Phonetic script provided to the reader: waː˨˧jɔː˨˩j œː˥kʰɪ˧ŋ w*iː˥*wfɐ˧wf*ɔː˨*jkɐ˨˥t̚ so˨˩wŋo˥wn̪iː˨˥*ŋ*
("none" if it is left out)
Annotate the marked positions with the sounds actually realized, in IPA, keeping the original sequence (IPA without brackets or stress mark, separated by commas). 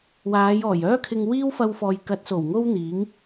iː˥, ɔː˨, ŋ